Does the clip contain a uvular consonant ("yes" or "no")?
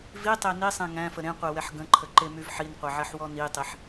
yes